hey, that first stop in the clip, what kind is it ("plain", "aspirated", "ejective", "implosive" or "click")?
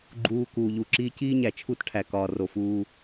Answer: click